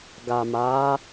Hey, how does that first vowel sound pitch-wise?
low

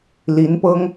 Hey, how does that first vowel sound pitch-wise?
rising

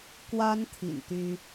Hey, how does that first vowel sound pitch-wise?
high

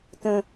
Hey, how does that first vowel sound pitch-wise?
high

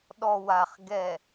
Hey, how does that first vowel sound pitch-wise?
low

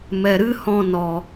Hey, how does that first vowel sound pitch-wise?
low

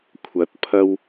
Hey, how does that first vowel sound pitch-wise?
rising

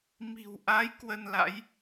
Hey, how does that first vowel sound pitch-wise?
low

